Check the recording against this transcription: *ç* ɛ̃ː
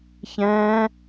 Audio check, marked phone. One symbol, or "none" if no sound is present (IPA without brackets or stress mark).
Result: ç